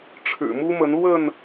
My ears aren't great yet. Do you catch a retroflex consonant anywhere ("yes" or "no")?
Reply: yes